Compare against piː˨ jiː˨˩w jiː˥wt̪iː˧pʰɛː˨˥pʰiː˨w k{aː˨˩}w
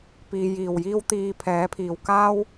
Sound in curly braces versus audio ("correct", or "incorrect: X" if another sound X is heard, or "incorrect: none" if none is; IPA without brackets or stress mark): incorrect: aː˥